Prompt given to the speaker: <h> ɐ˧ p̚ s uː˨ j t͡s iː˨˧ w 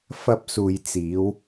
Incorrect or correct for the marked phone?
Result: incorrect: f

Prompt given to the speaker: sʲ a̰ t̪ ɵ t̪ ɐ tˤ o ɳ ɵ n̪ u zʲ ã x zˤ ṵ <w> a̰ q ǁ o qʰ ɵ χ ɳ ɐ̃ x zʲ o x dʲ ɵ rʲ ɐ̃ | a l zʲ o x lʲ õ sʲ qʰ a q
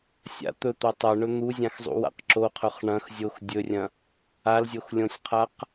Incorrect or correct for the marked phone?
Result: correct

